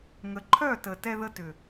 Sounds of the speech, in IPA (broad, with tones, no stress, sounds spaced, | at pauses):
ŋ ə˨ ǃʰ œ˦˨ t ə˨ t ɛ˧ ð ə˧ t ʏ˨